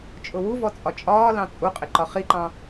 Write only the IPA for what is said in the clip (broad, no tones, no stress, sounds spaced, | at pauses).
t͡ʃʼ ʊ w u v ɔ t͡sʼ ɒ t͡ʃʼ ɒː l ɑ̃ t͡sʼ u qʼ ɪ ǃ ɒ χ i ǃ ɑ̃